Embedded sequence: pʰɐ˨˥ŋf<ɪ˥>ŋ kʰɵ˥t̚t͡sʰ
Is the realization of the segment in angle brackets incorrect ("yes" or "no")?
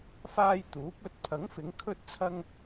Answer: yes